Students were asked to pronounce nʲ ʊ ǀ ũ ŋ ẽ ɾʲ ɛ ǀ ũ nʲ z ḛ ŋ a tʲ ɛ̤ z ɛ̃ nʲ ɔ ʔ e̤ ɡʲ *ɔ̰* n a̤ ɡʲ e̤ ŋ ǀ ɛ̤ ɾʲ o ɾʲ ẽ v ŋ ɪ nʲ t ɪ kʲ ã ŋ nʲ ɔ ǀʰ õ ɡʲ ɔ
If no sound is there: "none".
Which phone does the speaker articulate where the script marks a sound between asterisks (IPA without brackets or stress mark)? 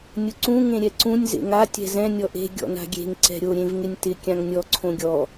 ɔ̰